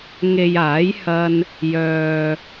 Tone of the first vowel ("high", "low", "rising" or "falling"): low